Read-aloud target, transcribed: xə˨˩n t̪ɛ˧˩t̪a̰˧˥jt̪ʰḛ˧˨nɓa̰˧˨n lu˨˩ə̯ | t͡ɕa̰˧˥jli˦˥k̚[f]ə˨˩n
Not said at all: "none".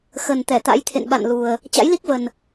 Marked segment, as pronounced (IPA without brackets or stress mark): v